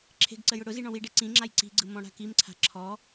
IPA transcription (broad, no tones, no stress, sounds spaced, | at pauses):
ǁʰ e̤ ɡ ǀ ə j ʊ ɽ ʊ z i ɳ ɔ̃ w i ɖ e ǀ ĩ ŋ͡ǁ a j ǀ i̤ ɡ͡ǀ ɯ m ɔ̃ ɽ a̤ k i m ǀʰ a̤ ǁʰ ɔ